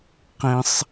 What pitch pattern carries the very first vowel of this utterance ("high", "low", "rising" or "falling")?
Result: low